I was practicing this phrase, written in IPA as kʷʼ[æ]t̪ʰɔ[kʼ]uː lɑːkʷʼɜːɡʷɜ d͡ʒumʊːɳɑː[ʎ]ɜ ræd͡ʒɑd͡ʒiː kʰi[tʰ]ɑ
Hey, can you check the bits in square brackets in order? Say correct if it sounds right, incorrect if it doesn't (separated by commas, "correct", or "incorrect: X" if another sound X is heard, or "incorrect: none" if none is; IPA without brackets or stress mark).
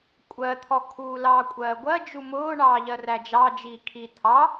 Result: incorrect: ɜ, incorrect: kʰ, correct, correct